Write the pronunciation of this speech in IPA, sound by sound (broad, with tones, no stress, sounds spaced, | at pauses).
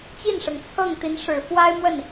t͡ɕ i˥˩ n ʂ ɤ˩ ŋ t͡sʰ ɤ˥˩ ŋ t̪ i˧˥ n ʂ ɻ̩˨˩ f w a˥ ɪ̯ m w ə˥˩ n